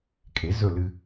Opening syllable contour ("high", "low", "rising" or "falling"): rising